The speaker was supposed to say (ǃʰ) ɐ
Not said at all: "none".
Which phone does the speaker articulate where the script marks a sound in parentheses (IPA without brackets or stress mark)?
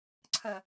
ǀʰ